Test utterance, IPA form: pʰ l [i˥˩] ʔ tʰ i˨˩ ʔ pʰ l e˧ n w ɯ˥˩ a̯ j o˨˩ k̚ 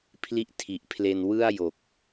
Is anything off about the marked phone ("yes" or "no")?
no